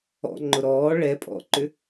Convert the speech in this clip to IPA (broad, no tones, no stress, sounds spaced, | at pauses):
ɔ̰ ŋ͡ǃ ʊ ɾ ɔː ɭ ɛ pʼ ɔ̰ ǃ ʏ